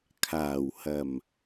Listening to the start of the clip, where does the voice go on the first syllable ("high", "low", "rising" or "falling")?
low